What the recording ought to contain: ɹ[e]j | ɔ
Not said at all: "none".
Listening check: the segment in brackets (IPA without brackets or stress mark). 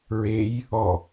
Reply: e